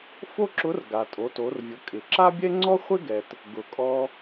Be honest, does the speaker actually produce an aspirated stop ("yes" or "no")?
no